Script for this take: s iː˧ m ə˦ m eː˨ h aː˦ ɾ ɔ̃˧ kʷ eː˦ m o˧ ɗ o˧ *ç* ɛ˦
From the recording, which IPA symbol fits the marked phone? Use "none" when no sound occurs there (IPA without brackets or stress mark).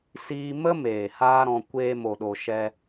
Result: ʃ